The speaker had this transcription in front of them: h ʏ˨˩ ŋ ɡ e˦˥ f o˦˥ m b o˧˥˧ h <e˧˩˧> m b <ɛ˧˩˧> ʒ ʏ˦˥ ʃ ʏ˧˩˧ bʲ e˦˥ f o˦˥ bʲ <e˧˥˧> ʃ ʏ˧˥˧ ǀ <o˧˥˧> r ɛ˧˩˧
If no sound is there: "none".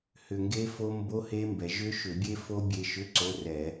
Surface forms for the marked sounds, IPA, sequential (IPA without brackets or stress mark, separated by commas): e˦˥, ɛ˩˧, e˧, o˧˥˧